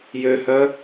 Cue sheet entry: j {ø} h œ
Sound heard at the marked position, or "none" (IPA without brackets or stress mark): ø